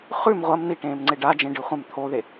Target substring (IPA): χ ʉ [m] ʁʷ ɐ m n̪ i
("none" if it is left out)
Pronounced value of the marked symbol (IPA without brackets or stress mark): m